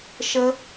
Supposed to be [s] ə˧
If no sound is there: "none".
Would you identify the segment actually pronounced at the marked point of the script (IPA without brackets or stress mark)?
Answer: ʃ